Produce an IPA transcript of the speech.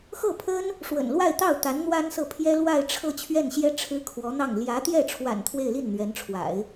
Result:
x ɤ˥˩ pʰ ə˥ n | ʂ w ə̰˨˩ n l w a˥˧ ɪ̯ t̪ ɑ˥˩ ʊ̯ t̪ a˧˥ n n̪ w a˥ n s ɤ˥˩ pʰ j ɛ˥ l w a˥˧ ɪ̯ ʈ͡ʂʰ ɤ˥˧ t͡ɕʰ ɥ ɛ˥˩ n ɕ j ɛ˥ ʈ͡ʂʰ ɻ̩˥ kʰ w ɔ˧˥ n̪ ɑ˥˩ ŋ l j ä˧˥ t̪ j ɛ˥˩ ʈ͡ʂʰ w a̰˨˩ n t̪ʰ w e˥˧ ɪ̯ l i˥˩ n n̪ ɥ ɛ˧˥ n ʈ͡ʂʰ w a̰˨˩˦ ɪ̯

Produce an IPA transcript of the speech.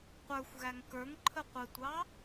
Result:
qʷ ə˞ xʷ ɣ æ ŋ k ə˞ ŋ ǃʰ ə qʷ ɛ tʷ ɑ

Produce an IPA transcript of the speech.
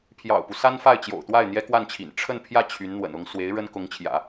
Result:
pʰ j ɑ̰˨˩ ʊ̯ p u˦ s a˥ n f a˥˩ ɪ̯ t͡ɕ j o̰˨˩ ʊ̯ t̪ w a˥˩ ɪ̯ n̪ j ɛ˥ k w a˥˩ n t͡ɕʰ ḭ˨˩ n ʈ͡ʂʰ ə˥˧ n pʰ j ä˥˩ t͡ɕʰ y˧˥ n n̪ w ə̰˨˩ n ʊ˥ ŋ s w e˧˥ ɪ̯ ɻ ə˥ n k ʊ˧˥ ŋ t͡ɕʰ j ä̰˨˩˦

